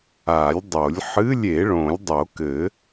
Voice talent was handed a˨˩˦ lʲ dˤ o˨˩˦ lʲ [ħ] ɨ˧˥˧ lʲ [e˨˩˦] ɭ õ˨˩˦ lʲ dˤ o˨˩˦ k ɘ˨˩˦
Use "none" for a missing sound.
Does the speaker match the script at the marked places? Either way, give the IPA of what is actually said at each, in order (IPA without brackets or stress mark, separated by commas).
ħ, e˨˩˦